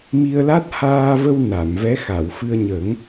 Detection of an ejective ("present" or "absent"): absent